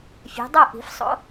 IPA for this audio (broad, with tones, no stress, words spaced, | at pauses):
fʲe̤˨˦dˤo˥˧ ʔi̤˨˩˦fsˤo̰˨˦